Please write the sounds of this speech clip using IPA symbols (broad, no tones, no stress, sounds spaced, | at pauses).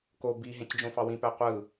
k o b i ɦ ẽ c d͡ʒ õ f ɑ w ĩ p æ qʷ ɯ